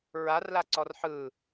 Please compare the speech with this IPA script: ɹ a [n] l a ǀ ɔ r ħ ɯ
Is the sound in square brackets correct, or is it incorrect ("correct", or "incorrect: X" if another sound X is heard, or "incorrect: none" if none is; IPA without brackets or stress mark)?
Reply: incorrect: r